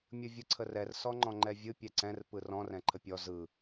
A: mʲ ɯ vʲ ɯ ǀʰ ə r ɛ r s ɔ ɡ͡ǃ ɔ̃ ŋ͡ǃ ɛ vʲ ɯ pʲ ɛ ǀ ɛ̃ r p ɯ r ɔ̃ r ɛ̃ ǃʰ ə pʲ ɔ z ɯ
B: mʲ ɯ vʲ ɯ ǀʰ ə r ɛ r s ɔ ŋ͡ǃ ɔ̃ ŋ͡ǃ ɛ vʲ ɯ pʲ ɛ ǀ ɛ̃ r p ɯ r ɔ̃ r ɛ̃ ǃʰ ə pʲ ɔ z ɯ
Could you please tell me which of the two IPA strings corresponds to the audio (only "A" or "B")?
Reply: B